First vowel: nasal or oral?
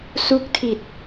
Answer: oral